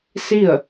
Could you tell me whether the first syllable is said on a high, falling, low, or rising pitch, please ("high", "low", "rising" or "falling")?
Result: falling